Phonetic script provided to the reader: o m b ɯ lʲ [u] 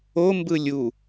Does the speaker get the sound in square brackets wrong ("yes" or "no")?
no